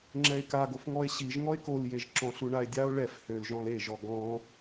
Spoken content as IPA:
ŋ͡ǁ ɛ e̯ k a ɡ o f ŋ ɔ e̯ ɕ i ʒ ŋ ɔ e̯ k o l j e ʒ ǁ ɔ̃ ɬ u ɳ a e̯ dʲ a o̯ ɭ ɛ f h ø l ʒ ɔ̃ l e ʒ ɔ ɡ ɔ̃

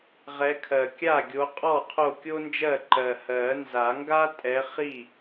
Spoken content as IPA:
ʁ ɛ˨˦ kʰ ɜ˨˩ kʲ a˥˩ ɡʲ o˨˦ qʼ ɔ˥˩ qʰ o˥˩ kʲ o˥ n d͡ʒ ɜ˥˩ ǃ ɜ˨˩ h ɜ˨˩˦ n z a˨˩˦ ŋ ɡ a˥ tʼ ɛ˨˦ χ i˥˩

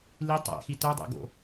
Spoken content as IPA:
l i tˤ æ̰ x i t œ dˤ æ̰ ɡ o̰

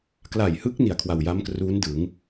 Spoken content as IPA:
k l a˨˩ j h ɯ˦˥ k̚ n i˨˩ a̯ kʰ w a˨˩ w j a˦˥ m k r uː˦˥ n d ɯ˩˦ ŋ

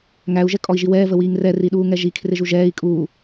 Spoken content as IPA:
ŋ æ u̯ ʒ ɛ kʼ ɔ i̯ ʒ i w ɛː v ə w iː ŋ r ɛ r i ɗ uː ŋ ɛ ʒ i kʰ r ɪ ʒ u ʒ ɛː i̯ kʼ uː

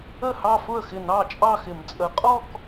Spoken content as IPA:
ə˥˩ h ɑ˥˧ f ʊ˥˩ ə̯ x ɪ˥˩ n ɑ˥˩ t͡ʃʼ ɑ˥˧ x ɪ˨˩˦ m t͡sʼ ə˨˩˦ qʼ ɔ˥˧ k

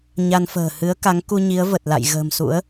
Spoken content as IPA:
ɲ a˧ n f ə̤ː˨˩ h ɨ˨˦ ə̯ k a˨˦ ŋ k u˧ ɲ i˨˦ ə̯ v ə˨˩ t̚ l a̰˧˨ j ɣ ə̤ː˨˩ m s ṵ˧˥ ə̯

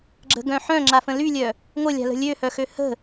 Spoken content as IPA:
ɡ͡ǁ ə̤ ɡ œ̃ ħ œ̃ ŋ͡ǁ a f ə̃ l y lʲ œ | ŋʷ ə lʲ a̤ l ə̤ lʲ ø h œ x ø h ə̤

